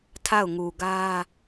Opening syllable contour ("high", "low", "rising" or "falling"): falling